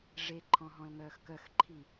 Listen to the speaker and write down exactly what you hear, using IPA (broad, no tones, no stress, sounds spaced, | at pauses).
ʐ e ǃʰ ɔ̃ ɦ ɔ̃ l ŋ œː x k œ x ǃʰ i